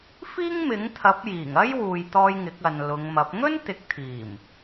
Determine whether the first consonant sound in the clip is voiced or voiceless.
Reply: voiceless